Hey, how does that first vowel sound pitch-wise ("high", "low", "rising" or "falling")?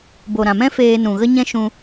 low